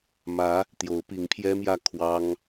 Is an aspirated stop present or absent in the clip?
present